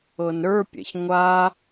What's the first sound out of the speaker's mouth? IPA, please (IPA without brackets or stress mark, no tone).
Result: ɤ